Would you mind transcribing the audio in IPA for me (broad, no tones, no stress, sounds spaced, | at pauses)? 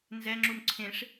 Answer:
n z ɛ ŋ͡ǁ u m ǀʰ ẽ ʂ